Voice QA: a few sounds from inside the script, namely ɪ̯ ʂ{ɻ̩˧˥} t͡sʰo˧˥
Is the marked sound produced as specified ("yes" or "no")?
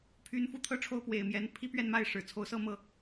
no